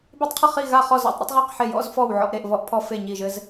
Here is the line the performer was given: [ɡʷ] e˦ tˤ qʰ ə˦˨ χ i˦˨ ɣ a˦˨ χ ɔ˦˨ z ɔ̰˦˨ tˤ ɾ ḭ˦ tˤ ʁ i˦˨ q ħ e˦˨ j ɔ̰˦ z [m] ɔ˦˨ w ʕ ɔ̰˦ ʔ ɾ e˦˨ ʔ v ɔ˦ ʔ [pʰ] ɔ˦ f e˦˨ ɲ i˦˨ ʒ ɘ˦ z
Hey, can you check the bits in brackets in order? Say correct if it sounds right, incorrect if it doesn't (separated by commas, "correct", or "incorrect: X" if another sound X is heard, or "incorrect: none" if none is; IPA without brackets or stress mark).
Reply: incorrect: b, incorrect: f, correct